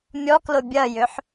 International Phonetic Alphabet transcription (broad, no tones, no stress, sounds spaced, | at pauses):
mʲ ɔ k l ʊ bʲ ɐ j ʏ ħ